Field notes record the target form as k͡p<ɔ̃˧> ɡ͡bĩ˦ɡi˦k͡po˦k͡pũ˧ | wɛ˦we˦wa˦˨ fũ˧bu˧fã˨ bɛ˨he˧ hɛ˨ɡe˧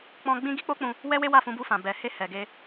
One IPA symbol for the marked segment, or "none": ɔ̃˧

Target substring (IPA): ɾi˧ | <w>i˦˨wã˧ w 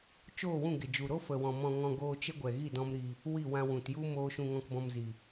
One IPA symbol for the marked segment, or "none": w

